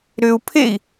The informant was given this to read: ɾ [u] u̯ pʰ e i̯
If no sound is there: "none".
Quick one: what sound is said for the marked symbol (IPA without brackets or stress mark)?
ʏ